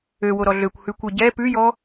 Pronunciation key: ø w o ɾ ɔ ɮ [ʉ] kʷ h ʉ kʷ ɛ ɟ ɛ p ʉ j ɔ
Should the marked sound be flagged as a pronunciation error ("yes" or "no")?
yes